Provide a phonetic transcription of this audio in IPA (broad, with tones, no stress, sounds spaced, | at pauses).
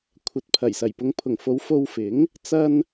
kʷʰ ɐ˨˥ t̚ pʰ ɐ˨˩ j s ɐ˨˩ j p ʊ˨˧ ŋ pʰ ʊ˨˩ ŋ f o˨˧ w f o˧ w f ɪ˨˥ ŋ | t͡s ɐ˧ n